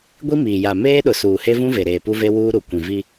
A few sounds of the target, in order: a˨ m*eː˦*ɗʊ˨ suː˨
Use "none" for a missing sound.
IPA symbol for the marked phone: eː˦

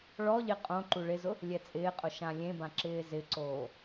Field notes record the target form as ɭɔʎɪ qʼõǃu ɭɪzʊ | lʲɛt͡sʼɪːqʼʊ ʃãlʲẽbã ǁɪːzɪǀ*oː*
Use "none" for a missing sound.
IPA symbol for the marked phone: oː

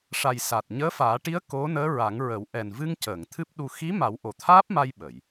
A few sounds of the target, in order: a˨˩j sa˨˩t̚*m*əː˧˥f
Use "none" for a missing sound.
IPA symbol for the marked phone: ɲ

